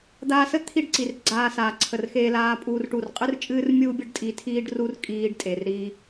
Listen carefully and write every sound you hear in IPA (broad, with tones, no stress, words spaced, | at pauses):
d̪aː˧sə˦ t̪ʰi˦ɖǀi˨r ɡ͡ǀaː˧saː˨ǀʰə˨rxeː˧ laː˦pʼuː˦rʈu˦˨r qʼɨ˦rt͡ʃʼɨː˦rmʲuː˦ bʲə˦ɖtʼi˧tʰiː˦ɖ ru˦rkʼiː˧ɖ tʼe˨rɾi˧